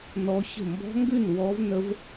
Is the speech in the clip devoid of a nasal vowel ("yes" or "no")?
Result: yes